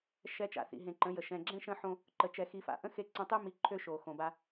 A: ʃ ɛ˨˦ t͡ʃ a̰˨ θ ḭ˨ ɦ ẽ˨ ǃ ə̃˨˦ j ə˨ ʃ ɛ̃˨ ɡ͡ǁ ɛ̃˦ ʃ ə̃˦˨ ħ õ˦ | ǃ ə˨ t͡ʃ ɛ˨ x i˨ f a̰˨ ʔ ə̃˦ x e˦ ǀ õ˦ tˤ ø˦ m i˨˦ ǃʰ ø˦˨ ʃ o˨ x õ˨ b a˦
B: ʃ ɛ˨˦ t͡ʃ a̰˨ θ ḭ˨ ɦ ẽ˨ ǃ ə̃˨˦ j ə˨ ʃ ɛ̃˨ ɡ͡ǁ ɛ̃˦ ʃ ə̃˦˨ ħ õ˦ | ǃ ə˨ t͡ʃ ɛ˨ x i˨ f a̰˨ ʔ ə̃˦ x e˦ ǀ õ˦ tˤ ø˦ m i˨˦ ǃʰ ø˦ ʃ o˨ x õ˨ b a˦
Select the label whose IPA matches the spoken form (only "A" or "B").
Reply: B